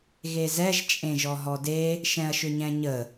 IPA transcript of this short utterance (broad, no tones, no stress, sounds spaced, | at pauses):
ɣ e z ɛ ʒ t͡ʃʼ ẽ ʒ ɔ ɦ ɔ d e | ʃ ɛ̃ ɐ̯ ʃ ʏ ɲ ɛ̃ ɲ ə